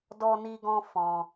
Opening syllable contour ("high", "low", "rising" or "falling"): high